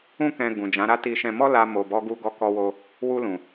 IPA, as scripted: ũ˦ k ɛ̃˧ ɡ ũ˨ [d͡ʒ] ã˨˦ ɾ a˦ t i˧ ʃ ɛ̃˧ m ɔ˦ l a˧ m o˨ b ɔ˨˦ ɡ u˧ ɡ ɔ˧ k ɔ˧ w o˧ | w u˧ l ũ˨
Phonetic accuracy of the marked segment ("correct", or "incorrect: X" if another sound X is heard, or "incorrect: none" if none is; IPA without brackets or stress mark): correct